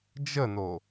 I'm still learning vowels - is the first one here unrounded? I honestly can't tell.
yes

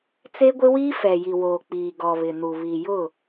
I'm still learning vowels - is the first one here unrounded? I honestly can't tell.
yes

